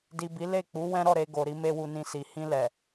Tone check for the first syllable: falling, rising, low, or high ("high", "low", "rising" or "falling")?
low